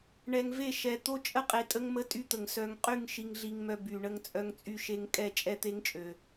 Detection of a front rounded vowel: present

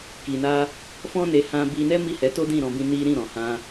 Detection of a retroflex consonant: absent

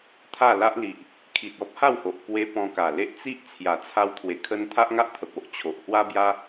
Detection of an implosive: absent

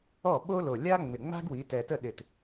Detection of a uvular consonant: absent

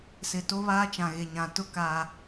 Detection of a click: absent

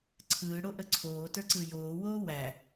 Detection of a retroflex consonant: present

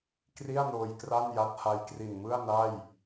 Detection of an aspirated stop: absent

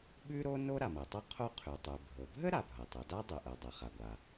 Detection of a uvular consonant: present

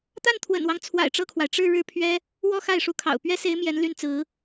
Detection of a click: absent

